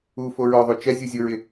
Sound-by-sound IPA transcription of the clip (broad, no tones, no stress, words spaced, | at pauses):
u foɹɔðˤo t͡ʃɛ zʲuzʲʊɹɪ